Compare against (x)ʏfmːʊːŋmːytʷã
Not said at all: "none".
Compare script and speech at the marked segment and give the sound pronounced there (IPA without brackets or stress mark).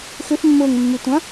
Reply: x